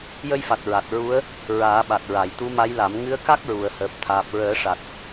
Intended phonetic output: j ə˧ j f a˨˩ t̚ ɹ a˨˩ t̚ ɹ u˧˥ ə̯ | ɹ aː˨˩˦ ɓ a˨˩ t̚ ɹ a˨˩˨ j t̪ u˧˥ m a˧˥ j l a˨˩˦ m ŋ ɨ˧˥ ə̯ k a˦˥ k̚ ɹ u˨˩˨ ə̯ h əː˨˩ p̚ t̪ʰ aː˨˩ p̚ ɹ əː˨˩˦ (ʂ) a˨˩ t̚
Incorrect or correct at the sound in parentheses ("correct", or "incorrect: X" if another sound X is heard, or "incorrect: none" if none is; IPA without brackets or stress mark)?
correct